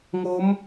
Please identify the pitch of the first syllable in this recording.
rising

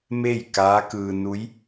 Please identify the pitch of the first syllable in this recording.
falling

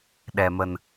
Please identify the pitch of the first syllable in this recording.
low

